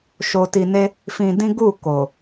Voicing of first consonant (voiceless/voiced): voiceless